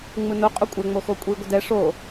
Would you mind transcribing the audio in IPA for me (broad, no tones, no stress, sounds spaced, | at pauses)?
ŋ͡m ɯ n o qʼ o kʷʼ ɛ ŋ͡m o x o kʷʼ i ɡʷ ə d ɛ ʂ o